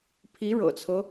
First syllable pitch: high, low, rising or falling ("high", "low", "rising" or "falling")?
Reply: rising